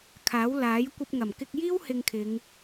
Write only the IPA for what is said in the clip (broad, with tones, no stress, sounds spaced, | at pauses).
kʰ aː˨˥ w l aː˨˥ j kʷ ɐ˧ p̚ ŋ ɐ˨˩ m k ɪ˧ k̚ j iː˥ w h ɪ˧ ŋ kʰ ɪ˨˧ ŋ